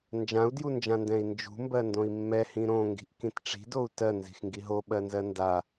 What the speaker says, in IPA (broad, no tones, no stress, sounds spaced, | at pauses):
n d͡ʒ ã u̯ d j u n d͡ʒ ã n d ɛ̃ i̯ n d͡ʒ ṳ m b ɜ n d õ i̯ mː ɛ h ĩ ɾ õ ŋ ɡ i̤ ʔ k ĩ t ʈ͡ʂ i̤ d o u̯ t ɜ n z i̤ x ŋ ɡ i ɦ o ɓ ɜ n z ɜ n d a